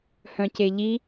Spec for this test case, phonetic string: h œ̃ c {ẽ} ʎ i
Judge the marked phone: incorrect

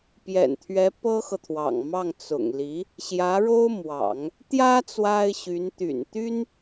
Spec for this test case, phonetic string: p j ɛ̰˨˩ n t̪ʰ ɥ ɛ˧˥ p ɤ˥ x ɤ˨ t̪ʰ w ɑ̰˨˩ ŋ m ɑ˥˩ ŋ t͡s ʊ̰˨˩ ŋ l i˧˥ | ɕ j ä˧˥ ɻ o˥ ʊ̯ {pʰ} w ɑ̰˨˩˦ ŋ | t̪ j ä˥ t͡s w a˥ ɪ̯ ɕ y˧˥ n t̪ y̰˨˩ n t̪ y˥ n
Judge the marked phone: incorrect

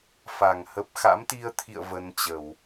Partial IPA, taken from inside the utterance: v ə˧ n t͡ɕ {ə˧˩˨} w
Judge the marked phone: correct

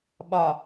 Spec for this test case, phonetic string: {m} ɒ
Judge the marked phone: incorrect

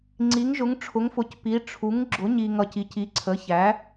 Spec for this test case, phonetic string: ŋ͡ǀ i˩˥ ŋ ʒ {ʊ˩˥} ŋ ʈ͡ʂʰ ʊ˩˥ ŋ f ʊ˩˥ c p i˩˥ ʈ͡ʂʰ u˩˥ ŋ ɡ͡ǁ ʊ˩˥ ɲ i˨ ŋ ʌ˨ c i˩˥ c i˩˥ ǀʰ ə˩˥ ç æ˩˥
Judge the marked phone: correct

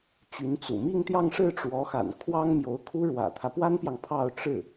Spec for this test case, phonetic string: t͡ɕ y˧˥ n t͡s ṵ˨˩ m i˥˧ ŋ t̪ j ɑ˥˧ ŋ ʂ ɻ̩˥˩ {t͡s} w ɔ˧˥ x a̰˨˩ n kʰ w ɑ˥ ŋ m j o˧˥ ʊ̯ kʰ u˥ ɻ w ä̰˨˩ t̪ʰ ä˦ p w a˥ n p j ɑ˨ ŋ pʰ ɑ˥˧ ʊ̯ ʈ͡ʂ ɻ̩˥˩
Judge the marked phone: incorrect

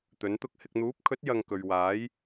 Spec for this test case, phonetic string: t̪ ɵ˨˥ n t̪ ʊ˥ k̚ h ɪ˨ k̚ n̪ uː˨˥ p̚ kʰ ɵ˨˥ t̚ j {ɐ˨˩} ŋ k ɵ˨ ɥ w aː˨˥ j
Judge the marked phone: incorrect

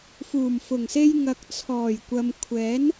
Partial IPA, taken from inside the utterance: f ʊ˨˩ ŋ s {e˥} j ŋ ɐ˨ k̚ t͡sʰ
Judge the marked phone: incorrect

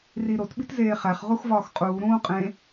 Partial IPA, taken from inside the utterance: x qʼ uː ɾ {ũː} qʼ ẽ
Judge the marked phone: correct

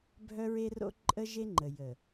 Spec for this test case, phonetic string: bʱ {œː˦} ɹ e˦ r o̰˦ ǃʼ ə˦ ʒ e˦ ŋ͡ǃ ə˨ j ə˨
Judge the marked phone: incorrect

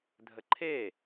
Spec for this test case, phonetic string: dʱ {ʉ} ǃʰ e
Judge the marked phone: incorrect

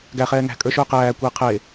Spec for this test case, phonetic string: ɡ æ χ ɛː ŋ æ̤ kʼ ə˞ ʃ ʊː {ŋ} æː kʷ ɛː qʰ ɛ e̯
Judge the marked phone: incorrect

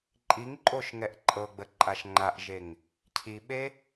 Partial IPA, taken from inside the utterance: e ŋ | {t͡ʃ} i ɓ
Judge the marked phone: incorrect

